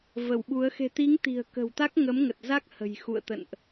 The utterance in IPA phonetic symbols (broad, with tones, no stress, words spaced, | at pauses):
və˧˩wɓu˨˦ə̯ xe̤˨˩t̪i˨˦ŋ t̪i̤˨˩ə̯kə̤˨˩wt̪a˦˥k̚ ŋə˨˦mŋə˨˩t̚za˦˥k̚ hə̤˨˩jxṵ˧˨ə̯t̪ə̰˧˨nʔ